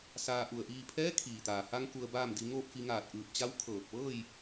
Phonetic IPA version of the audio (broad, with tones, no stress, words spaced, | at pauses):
saː˧ʔu˧˩ə̯ʔiː˥˨ pʰɛː˧˥kʰiː˩t̪aː˩ha˧ŋ ku˧ə̯baː˥˨mdi˧ ŋoː˥˨p̚fi˧ŋaː˧˩t̚ʔɯː˧˩p̚ t͡ɕa˧˥w kʰɤː˧˩k̚ ʋɤː˥˨j